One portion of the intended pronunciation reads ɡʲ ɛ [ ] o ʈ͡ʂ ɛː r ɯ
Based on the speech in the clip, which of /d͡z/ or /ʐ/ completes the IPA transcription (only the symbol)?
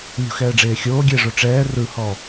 ʐ